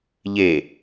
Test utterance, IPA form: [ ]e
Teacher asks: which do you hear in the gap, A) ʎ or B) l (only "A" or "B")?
A